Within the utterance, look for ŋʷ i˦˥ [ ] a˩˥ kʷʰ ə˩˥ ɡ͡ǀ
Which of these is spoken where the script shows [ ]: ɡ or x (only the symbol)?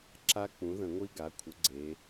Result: ɡ